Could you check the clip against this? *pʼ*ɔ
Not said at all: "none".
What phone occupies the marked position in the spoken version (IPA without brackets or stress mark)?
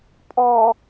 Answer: pʼ